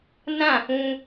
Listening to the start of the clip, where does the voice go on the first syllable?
falling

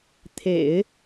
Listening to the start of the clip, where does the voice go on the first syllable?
low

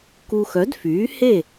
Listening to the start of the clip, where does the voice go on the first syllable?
low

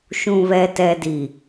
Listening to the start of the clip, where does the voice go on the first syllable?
low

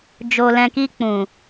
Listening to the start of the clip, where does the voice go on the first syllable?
low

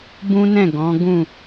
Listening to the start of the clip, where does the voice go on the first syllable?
high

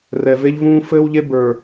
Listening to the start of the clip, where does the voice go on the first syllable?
low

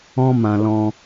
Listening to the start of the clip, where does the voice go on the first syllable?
high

